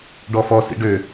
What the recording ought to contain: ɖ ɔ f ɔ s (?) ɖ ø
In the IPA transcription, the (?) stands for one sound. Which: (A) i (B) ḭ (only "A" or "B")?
B